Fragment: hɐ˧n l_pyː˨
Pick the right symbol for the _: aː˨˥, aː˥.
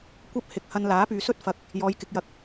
aː˨˥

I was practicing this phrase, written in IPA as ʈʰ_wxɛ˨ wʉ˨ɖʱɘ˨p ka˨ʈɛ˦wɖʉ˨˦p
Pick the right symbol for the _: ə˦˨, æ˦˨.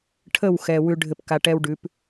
ə˦˨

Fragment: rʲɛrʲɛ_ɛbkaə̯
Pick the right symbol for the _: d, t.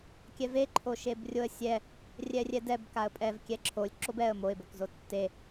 d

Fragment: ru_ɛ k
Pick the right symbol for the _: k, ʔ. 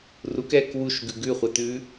k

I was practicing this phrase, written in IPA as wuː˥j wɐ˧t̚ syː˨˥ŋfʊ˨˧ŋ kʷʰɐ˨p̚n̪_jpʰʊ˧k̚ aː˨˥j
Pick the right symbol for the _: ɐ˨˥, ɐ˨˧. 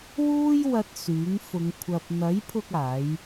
ɐ˨˥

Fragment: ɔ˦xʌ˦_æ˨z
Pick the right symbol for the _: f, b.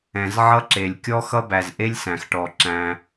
b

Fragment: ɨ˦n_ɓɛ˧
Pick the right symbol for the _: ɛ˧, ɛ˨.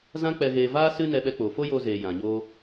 ɛ˧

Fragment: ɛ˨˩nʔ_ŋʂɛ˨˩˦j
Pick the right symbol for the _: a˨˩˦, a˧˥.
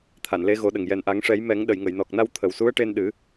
a˨˩˦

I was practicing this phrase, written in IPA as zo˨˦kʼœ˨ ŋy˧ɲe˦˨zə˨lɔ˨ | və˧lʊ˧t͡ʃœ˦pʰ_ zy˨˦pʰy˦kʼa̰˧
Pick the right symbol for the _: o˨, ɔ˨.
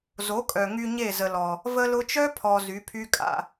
ɔ˨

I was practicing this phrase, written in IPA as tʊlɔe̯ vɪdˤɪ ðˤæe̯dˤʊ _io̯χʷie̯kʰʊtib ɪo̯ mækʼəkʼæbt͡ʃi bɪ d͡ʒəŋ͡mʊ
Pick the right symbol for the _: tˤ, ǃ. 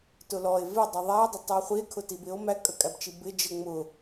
tˤ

